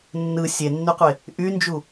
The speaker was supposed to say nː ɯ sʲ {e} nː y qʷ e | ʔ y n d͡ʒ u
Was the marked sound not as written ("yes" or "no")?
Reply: no